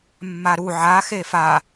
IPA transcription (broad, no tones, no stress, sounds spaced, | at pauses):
mː a ɾ u ʕ a x e f a